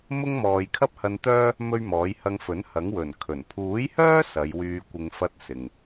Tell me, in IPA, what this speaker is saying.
m ʊ˥ ŋ m ɔː˨ j kʰ ɐ˥ p̚ h ɐ˧ n t̪ œː˥ | m ɵ˥ ɥ m ɔː˨˥ j h ɐ˧ ŋ f ɵ˨˥ n h ɐ˨˥ ŋ w ɵ˨˩ n kʰ ɵ˨˩ n pʰ uː˨˥ j h œː˥ s ɐ˨˧ j w yː˧ kʷ ɪ˧ ŋ f ɐ˥ t̚ s ɪ˨ ŋ

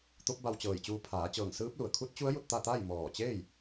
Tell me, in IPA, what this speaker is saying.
t̪ o˧˥ p̚ b a˧ w t͡ɕ ɤː˧˩ j t͡ɕ uː˧ pʰ aː˩˧ t͡ɕ ɤː˧˩ ŋ s ɯː˧˥ p̚ l u˩ ə̯ kʰ u˧˥ t̚ t͡ɕ u˧˥ ə̯ j u˥˨ t̚ t̪ a˥˨ t̪ a˥˨ j m ɔː˧˩ t͡ɕ eː˥˨ j

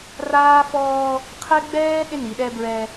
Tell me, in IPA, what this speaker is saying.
r aː˦ f ɔː˦ | qʰ ɛ˦ ɡ͡b ɛː˦ ɗ ɪ˦ n i˨ ɗ ɛ˦ b ɹ ɛ˦

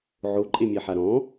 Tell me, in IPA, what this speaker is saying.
ʕ o ǃʼ e mʲ ɛ ħ a ɾ ɔ̃

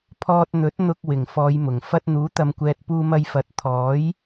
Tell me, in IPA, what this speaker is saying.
pʰ ɔː˧ t̚ n̪ ɵ˨˥ t̚ n̪ ʊ˧ k̚ w ɪ˨˩ ŋ f ɔː˨˧ j m ʊ˨˩ ŋ f ɐ˧ t̚ n̪ uː˨˥ t̪ ɐ˨ m kʷ ɛː˨ t̚ p uː˧ m ɐ˧ j f ɐ˨˥ t̚ t̪ʰ ɔː˨˥ j

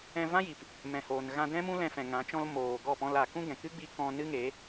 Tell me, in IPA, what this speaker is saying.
ɛ̃˧ v ã˦ j i˨ p | m ɛ̃˨ h oː˨ n ɣ ã˧ d ɛ̃˦ m ũ˦ l ɛ̃˧ f ɛ̃˨ ŋ ã˨˦ t͡ʃ ɔ̃˦ l m oː˨ ɡ ɔ˦˨ p ɔ̃˧ l a˨ k ũ˦ ɡ ɛ̃˨ k ɨ˦ ɡ͡b i˧ k ɔ̃˧ n ɨ˦ ŋ e˨˦

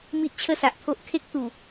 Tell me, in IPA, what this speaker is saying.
m i˦ ʔ t͡ɕʰ ə˥˧ s a˨ ʔ t̪ʰ o˦ ʔ kʰ e˦ k̚ t̪ u˨˩

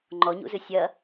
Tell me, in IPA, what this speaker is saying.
ŋ͡ǃ ɔ ɲ ṵ z ɨ sʲ ɐ

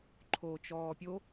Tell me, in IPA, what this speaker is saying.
ǃʰ oː t͡ʃ ɔː pʲ o

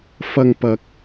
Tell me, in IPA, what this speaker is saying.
f ɐ˧ ŋ p ɐ˧ k̚

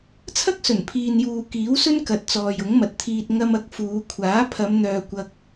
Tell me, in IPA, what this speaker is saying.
t͡sʰ ɐ˥ k̚ s ɵ˨˩ n pʰ iː˧ n j uː˧ k iː˨˥ w s ɵ˥ n k ɐ˨ t̚ t͡s ɔː˨ j ʊ˨˥ ŋ m ɐ˨ t̚ t̪ʰ iː˧ t̚ ŋ ɐ˧ m ɐ˨˥ k̚ f uː˨˧ kʷʰ aː˨˥ pʰ ɐ˨˧ m n̪ œː˨ kʷ ɐ˧ k̚

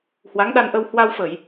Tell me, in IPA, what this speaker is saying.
h w a˨˦ ŋ ɗ a˧ n ʔ ə˧ w h w a˧ w f ə˧˩˨ j

